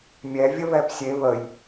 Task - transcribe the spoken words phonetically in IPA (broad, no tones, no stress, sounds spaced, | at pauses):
mʲ ɛ vʲ ə β ɛ p sʲ e β ə j